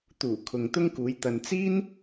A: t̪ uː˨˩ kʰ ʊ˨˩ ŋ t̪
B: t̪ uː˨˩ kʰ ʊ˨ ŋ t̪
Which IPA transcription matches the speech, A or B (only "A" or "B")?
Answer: B